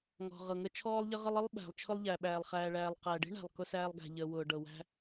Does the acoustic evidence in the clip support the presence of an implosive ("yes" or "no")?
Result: yes